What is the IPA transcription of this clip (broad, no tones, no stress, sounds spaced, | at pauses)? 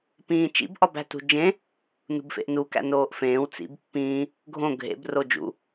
p ĩː t͡ʃ ḭ b ʔ ɒ b æ̤ t ṳ d͡ʒ ẽ | n ṳ b f ḛ ʔ n u k æ̰ n oː ʔ f ẽː w t͡s ḭ b pː ĩː | ɡʱ õ ɡʱ ḛ b r o d͡ʒ ṵ